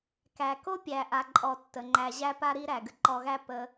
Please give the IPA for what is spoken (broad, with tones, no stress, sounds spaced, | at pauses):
k æ˨ k o˦ pʲ æ˨ ʔ a˨ ǃʼ ɔ˨ tː ə˨ ŋ͡ǃ æ˧ ʑ æ˦ p a˦ ɾ i˦ ɾ æ˨ ɡ ə˦ ǃ ɔ˧ ɣ æ˦ p ə˧